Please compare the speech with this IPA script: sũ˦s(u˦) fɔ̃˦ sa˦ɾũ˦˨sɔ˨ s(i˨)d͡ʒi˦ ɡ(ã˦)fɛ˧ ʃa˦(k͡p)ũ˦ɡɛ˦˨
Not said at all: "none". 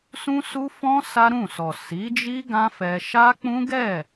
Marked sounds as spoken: u˦, i˨˦, ã˦, k͡p

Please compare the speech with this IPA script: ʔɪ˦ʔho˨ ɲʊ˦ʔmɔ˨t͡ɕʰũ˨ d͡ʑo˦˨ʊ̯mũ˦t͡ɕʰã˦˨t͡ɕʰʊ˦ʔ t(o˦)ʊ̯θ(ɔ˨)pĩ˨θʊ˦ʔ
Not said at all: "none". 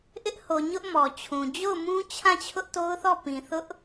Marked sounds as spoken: o˦, ɔ˦˨

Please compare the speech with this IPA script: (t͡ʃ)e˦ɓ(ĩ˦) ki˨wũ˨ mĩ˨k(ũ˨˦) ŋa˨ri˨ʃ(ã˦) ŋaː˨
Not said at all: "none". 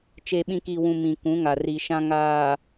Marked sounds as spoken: t͡ʃ, ĩ˦, ũ˨˦, ã˦

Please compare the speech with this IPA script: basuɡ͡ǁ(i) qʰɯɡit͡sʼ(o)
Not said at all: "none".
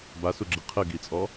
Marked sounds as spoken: i, ɔ

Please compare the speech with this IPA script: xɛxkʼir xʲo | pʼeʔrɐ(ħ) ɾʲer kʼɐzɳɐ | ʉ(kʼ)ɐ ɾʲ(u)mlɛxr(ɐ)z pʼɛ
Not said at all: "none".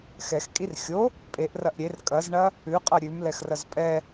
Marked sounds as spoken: ʔ, qʼ, ʉ, ɐ

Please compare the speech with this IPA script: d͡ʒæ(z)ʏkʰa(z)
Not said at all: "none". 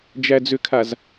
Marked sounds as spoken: d͡z, z

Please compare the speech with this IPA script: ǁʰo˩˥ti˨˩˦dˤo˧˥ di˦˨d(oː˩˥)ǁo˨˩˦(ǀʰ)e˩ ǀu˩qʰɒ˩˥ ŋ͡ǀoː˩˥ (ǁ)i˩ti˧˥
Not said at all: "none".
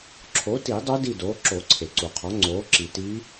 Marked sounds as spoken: oː˩˥, ǀʰ, ǁ

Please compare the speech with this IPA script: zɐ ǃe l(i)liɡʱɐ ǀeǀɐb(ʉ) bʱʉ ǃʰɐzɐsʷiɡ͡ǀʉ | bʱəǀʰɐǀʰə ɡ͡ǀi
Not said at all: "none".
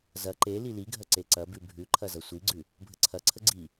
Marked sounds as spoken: i, ʉ

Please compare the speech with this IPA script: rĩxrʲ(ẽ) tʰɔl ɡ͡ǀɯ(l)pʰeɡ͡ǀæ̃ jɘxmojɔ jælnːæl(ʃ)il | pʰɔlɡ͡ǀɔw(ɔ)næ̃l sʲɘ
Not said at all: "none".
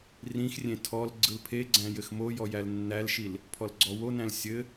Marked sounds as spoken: ẽ, l, ʃ, o

